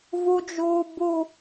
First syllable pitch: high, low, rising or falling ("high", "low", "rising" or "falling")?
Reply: high